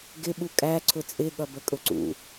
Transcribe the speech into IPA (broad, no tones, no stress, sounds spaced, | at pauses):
ɡ ɪ ɓ u kʼ æ ǀʰ ʊ t͡sʼ ɪ ɠ ʌ b ə kʼ ʊ ǀ ṵ